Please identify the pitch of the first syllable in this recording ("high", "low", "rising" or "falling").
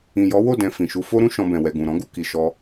low